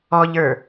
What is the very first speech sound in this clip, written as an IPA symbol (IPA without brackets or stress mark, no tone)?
ɔ